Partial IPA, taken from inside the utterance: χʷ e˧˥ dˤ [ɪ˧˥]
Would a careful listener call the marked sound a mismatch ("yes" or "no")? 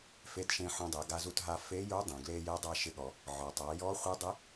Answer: no